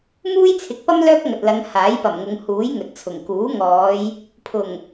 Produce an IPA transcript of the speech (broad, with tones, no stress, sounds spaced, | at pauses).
m uː˥ j t͡sʰ ɪ˨˥ k̚ p ɐ˥ m l œː˥ k̚ ŋ ɐ˨ t̚ l ɐ˨˧ ŋ h aː˨˥ j p ɐ˨˩ m ŋ ʊ˨˧ ŋ h uː˨˥ j ŋ ɵ˨ t̚ t͡sʰ ʊ˨˩ ŋ k uː˨˥ ŋ ɔː˨˧ j | pʰ ʊ˨˩ ŋ